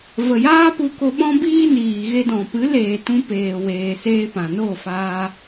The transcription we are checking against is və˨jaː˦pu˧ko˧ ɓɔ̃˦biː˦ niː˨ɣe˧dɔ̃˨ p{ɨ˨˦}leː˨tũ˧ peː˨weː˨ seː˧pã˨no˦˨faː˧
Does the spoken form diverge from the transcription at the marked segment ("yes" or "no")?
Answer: no